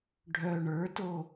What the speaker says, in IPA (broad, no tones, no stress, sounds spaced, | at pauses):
ɖʱ œ ɳ ə˞ t o